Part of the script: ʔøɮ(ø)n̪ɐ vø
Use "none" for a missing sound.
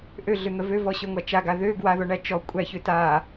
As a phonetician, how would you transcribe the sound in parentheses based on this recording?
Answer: ø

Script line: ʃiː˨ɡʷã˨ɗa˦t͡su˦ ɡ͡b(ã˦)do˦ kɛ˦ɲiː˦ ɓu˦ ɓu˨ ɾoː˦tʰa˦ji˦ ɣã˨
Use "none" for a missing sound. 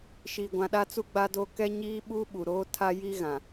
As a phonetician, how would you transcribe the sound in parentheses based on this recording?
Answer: a˦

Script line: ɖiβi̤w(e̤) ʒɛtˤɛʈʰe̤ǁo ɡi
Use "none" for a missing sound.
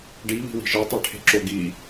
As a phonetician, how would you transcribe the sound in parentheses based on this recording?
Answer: i̤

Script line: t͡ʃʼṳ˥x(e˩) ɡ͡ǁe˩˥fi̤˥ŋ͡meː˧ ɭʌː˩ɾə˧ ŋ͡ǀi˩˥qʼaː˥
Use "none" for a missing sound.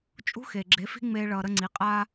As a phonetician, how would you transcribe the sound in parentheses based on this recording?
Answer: e˩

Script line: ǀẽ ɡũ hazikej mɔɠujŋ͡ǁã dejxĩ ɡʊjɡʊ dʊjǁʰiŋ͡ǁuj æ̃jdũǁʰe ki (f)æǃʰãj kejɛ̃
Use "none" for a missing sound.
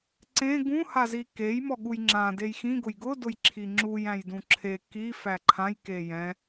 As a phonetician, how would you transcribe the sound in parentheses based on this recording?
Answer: f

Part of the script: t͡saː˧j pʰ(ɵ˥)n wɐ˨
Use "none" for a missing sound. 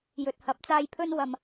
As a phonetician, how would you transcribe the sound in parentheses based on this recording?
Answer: ɵ˧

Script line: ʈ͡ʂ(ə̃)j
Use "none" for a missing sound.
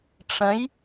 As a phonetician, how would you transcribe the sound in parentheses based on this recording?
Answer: ə̃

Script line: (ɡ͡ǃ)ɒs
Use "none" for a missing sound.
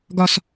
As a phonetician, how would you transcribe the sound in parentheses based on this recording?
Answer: ɡ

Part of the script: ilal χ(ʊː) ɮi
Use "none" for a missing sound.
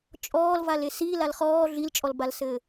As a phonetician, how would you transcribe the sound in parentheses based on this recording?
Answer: ɔː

